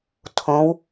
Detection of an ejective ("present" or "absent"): absent